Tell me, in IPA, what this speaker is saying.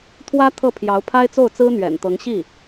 t̪ʰ w ä˥ t̪ʰ ɤ˥˩ pʰ j ɑ˧˥ ʊ̯ pʰ a˥ ɪ̯ t͡s o˥˩ ʊ̯ t͡s ɹ̩˥ n̪ ɥ ɛ̰˨˩ n t̪ ɤ˧˥ ŋ ɕ i˥˩

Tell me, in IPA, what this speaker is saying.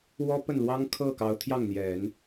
w ɔ˥ p ə˥˩ n l w ɑ˥ ŋ kʰ ɤ˥˩ k ɑ˧˥ ʊ̯ t̪ʰ j ɑ˥˩ ŋ n̪ j ɛ˨˩˦ n

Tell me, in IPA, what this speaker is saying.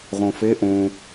ʁ õ f e ʔ õ

